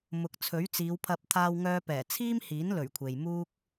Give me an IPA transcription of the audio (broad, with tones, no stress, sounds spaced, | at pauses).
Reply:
m ʊ˨ k̚ t͡sʰ ɵ˨˥ ɥ t͡s iː˨˧ w pʰ ɐ˧ p̚ t̪ʰ aː˧ w ŋ œː˧ p ɛː˨˩ t͡sʰ iː˥ m h iː˨˥ n l ɵ˨˩ ɥ kʷʰ e˨ j m uː˥ k̚